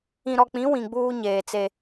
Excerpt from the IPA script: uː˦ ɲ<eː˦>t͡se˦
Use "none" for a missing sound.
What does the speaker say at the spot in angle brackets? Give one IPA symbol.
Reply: eː˨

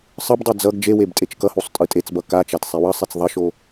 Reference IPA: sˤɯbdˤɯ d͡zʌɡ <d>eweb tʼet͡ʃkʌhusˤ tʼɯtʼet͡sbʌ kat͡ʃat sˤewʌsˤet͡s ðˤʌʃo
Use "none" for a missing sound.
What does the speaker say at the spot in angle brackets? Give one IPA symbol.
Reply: d͡ʒ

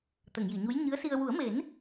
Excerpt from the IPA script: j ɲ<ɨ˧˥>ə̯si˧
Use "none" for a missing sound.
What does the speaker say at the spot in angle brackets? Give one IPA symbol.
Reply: ɨ˧˥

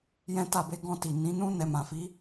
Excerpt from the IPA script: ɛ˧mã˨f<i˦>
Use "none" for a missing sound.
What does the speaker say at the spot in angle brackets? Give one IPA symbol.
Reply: i˨˦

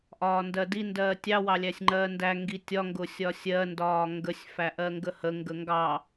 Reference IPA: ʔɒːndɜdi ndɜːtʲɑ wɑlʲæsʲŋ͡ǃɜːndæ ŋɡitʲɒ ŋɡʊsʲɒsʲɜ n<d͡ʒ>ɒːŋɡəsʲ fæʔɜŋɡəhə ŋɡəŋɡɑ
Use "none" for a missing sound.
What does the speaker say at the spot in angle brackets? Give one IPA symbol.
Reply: d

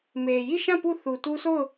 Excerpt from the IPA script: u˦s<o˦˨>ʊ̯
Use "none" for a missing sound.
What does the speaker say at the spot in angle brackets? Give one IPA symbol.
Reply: o˦˨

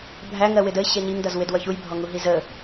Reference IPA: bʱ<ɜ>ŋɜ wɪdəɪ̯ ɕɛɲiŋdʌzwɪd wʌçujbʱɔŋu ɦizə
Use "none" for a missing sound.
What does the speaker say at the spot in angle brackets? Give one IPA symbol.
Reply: æ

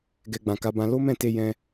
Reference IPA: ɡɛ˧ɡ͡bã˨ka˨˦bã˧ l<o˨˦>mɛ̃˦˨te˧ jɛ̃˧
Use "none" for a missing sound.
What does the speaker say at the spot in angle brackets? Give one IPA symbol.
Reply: o˦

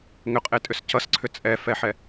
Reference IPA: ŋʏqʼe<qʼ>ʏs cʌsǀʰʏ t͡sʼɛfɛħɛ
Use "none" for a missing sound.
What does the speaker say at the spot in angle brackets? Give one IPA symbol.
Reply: tʼ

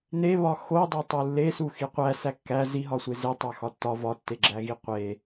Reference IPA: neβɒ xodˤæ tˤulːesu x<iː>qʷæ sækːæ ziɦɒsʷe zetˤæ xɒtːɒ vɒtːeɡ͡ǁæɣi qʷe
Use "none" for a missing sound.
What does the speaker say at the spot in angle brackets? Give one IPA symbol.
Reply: i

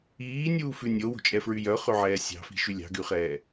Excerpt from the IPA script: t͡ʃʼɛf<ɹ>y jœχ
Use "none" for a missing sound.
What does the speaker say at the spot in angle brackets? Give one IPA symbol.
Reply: ɹ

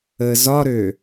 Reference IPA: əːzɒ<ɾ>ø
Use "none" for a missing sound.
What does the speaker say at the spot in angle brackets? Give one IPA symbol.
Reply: ɾ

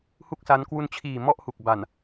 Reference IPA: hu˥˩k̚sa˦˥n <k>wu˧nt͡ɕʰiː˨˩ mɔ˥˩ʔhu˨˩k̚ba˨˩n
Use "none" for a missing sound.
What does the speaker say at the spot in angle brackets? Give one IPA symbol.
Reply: k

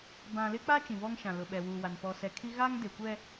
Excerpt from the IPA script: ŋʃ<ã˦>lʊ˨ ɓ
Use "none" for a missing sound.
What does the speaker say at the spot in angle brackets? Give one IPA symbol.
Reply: ã˨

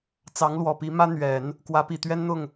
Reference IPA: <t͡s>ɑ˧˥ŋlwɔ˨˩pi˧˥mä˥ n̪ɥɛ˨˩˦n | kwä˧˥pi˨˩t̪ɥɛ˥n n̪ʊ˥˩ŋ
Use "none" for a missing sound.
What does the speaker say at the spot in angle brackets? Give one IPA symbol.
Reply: t͡s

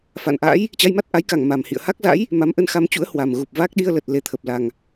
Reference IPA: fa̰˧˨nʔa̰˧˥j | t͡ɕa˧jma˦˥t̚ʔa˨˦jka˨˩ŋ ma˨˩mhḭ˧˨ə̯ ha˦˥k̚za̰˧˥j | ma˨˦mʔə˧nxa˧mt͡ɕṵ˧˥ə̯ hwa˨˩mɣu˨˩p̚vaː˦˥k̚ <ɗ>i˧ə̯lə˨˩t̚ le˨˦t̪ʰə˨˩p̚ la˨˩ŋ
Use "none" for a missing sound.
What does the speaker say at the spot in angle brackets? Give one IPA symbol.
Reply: ɗ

